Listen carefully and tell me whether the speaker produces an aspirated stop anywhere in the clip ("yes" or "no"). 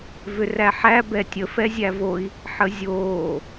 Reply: no